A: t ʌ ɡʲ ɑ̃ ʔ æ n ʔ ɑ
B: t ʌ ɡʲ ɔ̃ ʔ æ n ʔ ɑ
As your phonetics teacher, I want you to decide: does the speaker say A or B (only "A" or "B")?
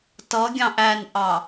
A